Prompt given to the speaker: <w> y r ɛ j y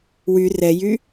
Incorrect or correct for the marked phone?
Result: correct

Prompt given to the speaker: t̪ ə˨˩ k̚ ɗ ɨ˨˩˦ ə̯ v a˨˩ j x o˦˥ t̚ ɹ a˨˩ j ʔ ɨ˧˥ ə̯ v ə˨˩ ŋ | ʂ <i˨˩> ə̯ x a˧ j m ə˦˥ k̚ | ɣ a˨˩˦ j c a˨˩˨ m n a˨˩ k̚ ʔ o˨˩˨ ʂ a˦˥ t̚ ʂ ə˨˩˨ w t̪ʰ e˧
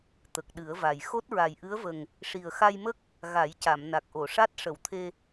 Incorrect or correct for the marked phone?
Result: correct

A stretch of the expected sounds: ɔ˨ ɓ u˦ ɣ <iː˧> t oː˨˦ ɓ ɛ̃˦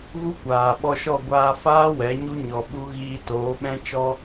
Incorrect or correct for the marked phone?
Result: correct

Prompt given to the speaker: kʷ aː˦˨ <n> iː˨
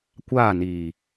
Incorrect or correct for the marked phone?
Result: correct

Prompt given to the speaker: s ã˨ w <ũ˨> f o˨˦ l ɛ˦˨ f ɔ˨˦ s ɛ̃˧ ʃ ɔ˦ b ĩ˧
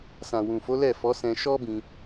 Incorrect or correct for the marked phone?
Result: correct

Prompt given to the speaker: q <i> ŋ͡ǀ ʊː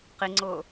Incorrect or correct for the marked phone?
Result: correct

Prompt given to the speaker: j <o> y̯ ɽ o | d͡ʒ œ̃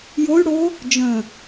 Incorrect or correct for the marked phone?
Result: correct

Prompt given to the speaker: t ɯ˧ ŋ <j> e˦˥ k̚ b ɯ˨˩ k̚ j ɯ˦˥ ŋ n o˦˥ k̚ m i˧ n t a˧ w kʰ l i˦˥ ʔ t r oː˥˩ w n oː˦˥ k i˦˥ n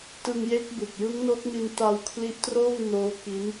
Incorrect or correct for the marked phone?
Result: correct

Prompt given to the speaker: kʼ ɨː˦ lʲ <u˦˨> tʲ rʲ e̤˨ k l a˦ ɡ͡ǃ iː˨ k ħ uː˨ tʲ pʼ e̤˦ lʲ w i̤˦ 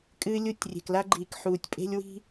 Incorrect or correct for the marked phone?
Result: correct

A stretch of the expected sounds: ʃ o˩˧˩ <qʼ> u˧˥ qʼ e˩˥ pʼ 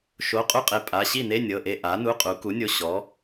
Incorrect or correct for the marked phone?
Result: correct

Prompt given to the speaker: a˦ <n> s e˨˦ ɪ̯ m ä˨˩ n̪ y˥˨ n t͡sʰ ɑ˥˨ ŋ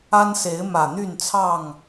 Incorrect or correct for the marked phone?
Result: correct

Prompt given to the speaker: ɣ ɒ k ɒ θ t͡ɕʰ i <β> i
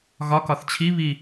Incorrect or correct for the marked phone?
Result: correct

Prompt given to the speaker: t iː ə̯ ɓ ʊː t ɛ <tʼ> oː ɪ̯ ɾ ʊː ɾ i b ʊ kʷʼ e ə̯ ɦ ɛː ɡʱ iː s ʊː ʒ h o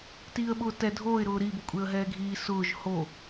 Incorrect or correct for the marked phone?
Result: incorrect: dʱ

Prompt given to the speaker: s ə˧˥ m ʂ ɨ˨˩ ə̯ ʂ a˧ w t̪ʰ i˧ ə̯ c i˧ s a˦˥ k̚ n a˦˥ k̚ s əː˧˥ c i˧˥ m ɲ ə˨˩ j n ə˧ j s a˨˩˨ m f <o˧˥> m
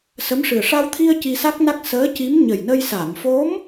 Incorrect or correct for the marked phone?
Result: correct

